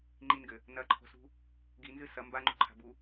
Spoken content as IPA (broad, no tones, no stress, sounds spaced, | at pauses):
ŋ͡ǃ i n ɡ ɘ | n ɐ ǃʰ o̤ s ṳ | ɡ i n z ɨ s ɐ m b a ŋ͡ǃ ṳ ǃʰ a̤ b u